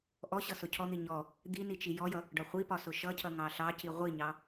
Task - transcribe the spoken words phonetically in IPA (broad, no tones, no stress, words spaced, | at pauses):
ʔɔɕʌ sʊcʰɔn̪i ɲɔ | d̪i nit͡ʃijɔjʌ | ɖɒχʷipɒ sʊʃʌcʰʌ ŋɑɬɑci ʁʷiɲɑ